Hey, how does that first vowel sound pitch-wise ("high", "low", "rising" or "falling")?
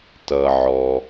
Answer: low